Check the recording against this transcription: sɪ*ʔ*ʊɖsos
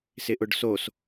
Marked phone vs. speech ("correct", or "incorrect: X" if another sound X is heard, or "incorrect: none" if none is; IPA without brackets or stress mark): correct